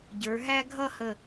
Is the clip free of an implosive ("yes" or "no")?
yes